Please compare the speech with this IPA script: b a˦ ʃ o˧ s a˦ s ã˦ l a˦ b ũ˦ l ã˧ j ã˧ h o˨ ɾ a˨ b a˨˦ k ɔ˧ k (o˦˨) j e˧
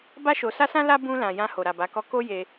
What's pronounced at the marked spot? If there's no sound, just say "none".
o˦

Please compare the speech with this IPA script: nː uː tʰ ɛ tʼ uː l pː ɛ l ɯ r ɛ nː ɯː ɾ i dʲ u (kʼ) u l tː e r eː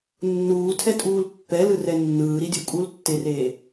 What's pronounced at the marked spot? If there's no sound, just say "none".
kʼ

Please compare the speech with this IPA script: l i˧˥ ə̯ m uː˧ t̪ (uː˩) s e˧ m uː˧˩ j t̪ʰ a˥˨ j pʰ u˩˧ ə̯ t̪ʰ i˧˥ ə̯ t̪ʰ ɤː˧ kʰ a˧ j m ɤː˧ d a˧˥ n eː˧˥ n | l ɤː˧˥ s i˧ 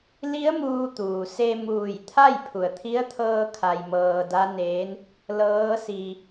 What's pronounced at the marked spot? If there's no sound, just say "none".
uː˩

